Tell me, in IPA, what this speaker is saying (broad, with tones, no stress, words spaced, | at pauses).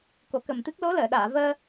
ko˨˩˦kə˨˩mt̪ɨ˦˥k̚ lo˧˥ləː˨˩˨ɗaː˨˩˨vəː˧